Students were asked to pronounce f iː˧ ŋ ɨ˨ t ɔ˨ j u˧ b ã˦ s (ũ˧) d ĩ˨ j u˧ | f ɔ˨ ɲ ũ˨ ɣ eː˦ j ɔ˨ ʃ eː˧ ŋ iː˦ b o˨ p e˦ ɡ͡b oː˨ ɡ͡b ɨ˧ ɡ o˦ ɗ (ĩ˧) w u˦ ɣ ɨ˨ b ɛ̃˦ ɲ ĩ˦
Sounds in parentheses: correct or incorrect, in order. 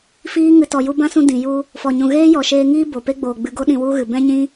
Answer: correct, correct

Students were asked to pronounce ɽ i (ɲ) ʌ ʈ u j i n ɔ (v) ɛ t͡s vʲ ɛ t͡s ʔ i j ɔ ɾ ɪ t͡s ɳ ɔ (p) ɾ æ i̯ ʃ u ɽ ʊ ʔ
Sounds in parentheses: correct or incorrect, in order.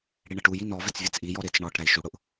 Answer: incorrect: ɳ, correct, incorrect: ʈ

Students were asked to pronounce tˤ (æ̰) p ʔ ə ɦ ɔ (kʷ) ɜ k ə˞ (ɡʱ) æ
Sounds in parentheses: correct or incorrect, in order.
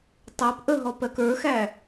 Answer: incorrect: æ, incorrect: p, incorrect: x

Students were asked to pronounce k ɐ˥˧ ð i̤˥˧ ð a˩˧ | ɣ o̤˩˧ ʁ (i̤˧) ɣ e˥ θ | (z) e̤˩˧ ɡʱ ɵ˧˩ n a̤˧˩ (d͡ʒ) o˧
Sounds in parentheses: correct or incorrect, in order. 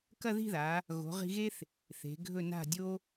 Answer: correct, incorrect: θ, incorrect: dʲ

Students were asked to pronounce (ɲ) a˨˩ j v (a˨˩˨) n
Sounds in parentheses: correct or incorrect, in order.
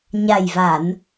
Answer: correct, correct

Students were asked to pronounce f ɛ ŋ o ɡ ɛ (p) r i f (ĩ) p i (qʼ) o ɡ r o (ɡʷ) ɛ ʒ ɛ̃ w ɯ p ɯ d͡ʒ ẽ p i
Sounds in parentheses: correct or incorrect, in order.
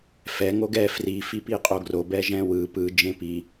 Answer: incorrect: f, incorrect: i, correct, incorrect: b

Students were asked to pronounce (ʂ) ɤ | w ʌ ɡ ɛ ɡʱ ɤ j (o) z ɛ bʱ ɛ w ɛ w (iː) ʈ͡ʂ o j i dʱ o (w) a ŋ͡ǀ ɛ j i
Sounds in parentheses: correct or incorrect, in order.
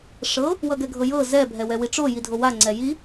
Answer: correct, incorrect: ɤ, incorrect: i, correct

